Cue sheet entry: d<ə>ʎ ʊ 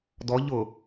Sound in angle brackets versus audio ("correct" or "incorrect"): incorrect